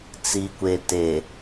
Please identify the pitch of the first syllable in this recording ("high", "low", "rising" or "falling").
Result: low